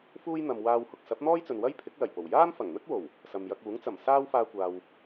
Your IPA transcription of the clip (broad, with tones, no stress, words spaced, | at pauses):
fuː˥j n̪ɐ˨m waː˧whʊ˧k̚ sɐ˨˥p̚n̪ɔː˥jt͡sɵ˨nwɐ˥j pʰɪ˨˥k̚lɐ˨˩jpo˨˩w jaː˥mfɐ˨˩ŋn̪ɵ˥t̚ wo˨˩w | sɐ˨mjɐ˧k̚uː˨˥ŋ t͡sɐ˨˩m saː˥wfaː˧kʷaː˨w